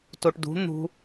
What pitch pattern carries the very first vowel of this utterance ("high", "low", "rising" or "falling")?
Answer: low